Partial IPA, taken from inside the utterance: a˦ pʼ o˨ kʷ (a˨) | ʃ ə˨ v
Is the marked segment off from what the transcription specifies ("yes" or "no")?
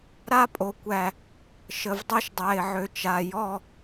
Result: yes